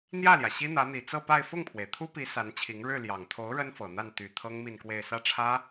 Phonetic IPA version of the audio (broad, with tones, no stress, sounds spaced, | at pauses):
n̪ j ä˥˩ l j ä˩ ɕ i˥ n̪ ä˧˥ n̪ i˨˩ t͡s ɤ˥˧ p a˥˧ ɪ̯ f ʊ˥˩ ŋ pʰ w e˩ ɪ̯ t̪ʰ u˥ p i˧˥ s a˧˥ n t͡ɕʰ i˧˥ ŋ ɻ ɻ̩˥˩ l j ɑ˨˩ ŋ t̪ʰ o˧˥ ʊ̯ ɻ ə˥ n f ɤ˨˩ n̪ a˥˩ n t̪ y˨˩ t̪ʰ ɤ˥ ŋ m i˥˧ n k w e˥˧ ɪ̯ s ä˥˩ ʈ͡ʂʰ ä˥